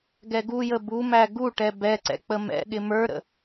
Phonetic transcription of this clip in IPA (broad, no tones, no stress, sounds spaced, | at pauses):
ɡ ɛ ɡ u j ə b u m æ ɡ u ʈ ɛ b ɛ ǀ ɛ̰ k͡p ə m ɛ̰ ɠ ɪ m ə˞ ɾ ə̰